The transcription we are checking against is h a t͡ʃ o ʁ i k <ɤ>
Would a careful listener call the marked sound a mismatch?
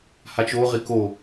yes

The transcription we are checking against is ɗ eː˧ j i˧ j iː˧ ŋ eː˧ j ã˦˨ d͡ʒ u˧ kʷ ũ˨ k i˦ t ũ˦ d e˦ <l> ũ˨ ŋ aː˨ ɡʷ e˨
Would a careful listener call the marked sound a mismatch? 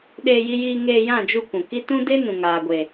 yes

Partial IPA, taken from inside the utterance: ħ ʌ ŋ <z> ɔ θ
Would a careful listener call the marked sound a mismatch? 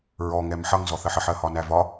no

